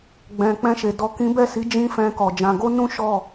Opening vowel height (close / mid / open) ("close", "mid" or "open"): mid